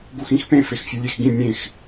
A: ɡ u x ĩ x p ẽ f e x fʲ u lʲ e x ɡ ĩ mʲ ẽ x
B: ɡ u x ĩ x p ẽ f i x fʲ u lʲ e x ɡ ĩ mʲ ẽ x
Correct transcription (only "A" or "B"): A